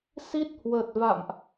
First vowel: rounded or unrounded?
unrounded